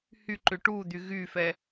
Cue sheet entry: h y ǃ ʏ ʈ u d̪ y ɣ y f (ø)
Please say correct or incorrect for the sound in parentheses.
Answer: incorrect